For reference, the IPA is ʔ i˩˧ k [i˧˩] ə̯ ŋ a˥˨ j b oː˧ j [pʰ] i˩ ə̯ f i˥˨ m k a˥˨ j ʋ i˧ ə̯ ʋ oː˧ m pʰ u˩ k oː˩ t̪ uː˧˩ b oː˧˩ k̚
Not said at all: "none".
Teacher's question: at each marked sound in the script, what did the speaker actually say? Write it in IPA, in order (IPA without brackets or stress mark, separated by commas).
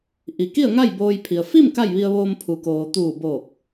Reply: i˥˨, pʰ